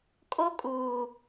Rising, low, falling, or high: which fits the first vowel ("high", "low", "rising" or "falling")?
high